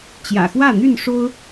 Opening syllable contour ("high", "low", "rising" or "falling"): low